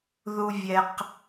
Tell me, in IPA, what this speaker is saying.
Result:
ð u˦ vʲ ɛ˦ q

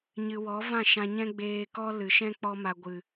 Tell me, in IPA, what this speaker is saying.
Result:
ɲ ɨ˨ w ɔ˨˦ v ã˦˨ ʃ ã˧ ɲ ɛ̃˦ ɡ͡b eː˧ k ɔ˦ l ɨ˨ ʃ ɛ̃˦ k͡p ɔ˦ m a˧ ɡʷ ɨ˨

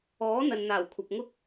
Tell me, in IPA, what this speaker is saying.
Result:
ɔː˨˥ n̪ ɐ˨ n n̪ aː˨˩ w kʷʰ ɐ˨ p̚ ŋ ʊ˥ k̚

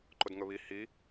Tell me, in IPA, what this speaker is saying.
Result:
ǃ ʊ d ŋ ɵ β i h i

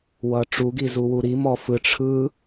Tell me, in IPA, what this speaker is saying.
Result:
w ʌ ʈ͡ʂ u ɡ i z u w u ɾ i m ɔ f ɯ ʈ͡ʂʰ ɯ

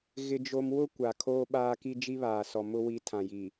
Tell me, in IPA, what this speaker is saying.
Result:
ɣ ɪ˦ d͡ʒ o˦ m w ʊ˦ kʷ a˨ kʰ oː˦ ɓ aː˦ k i˦ d͡ʒ i˦ β aː˨ s ɔ˨ m ʊ˦ w i˦ tʰ ã˨ j i˨

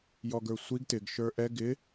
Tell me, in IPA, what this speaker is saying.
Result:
j ɔ ɡ ə˞ sʷ i ɡ t ɪ ɡ ʃ ə˞ ʔ ɛ ɡ ɪ

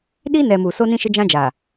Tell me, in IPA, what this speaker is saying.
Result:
ɗ i˦ n ɛ˨ m u˨ s o˦ n ĩ˦ ʃ ɪ˦ d͡ʒ ã˦ d͡ʒ aː˨

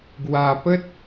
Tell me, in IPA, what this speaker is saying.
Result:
ɡ w a˨˩ p ə˦ t̚

